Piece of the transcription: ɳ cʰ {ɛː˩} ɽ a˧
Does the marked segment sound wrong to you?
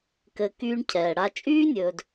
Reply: no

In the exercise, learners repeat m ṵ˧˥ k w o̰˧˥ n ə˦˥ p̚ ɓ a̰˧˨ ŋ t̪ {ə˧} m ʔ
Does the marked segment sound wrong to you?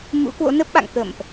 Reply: yes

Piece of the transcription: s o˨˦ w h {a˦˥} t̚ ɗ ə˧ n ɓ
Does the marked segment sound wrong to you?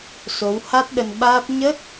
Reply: no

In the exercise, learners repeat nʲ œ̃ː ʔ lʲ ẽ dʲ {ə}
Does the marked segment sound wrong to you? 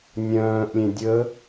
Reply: no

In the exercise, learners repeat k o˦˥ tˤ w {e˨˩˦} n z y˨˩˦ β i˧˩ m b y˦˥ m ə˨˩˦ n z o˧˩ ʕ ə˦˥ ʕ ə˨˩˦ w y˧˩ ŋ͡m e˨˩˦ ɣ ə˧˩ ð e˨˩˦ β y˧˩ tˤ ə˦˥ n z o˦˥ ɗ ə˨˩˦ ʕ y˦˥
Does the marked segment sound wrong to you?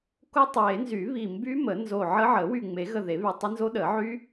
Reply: no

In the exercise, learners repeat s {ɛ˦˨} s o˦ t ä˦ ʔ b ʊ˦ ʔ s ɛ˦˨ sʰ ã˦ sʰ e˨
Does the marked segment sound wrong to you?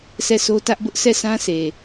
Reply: no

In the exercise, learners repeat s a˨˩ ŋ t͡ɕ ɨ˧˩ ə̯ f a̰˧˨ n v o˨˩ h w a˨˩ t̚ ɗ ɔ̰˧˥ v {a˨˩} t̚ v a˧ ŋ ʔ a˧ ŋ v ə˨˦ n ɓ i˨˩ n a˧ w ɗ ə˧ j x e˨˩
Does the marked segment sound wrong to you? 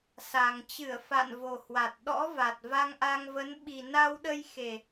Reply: no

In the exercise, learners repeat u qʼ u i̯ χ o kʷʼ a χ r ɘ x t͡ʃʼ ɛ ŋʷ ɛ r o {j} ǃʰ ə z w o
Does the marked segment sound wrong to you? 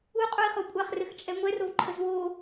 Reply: yes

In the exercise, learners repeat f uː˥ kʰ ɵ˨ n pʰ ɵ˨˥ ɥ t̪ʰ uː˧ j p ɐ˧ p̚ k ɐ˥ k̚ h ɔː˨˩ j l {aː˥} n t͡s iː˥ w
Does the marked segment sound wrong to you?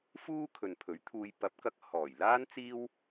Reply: no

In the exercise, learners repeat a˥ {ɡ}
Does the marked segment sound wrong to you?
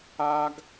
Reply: no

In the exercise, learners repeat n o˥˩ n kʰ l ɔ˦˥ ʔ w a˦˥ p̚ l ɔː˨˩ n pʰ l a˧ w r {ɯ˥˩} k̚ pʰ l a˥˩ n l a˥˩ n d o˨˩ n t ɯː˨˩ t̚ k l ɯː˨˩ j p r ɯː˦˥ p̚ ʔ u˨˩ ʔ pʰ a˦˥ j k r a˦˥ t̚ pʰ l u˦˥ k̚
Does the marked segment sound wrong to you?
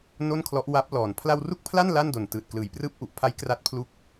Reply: yes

